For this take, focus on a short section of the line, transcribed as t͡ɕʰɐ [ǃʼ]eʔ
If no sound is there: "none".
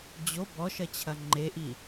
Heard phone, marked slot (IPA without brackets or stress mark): ŋ͡ǃ